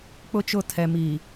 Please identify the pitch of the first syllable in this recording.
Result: high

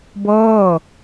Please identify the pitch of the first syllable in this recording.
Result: falling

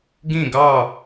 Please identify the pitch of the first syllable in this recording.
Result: falling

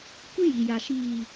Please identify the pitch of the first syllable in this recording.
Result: high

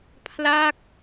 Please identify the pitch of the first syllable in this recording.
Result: falling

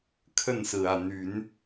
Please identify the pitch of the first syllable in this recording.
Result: falling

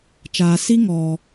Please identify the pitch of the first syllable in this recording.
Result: high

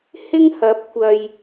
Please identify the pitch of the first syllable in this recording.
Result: high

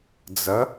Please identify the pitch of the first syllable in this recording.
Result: rising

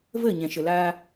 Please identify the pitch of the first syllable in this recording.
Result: falling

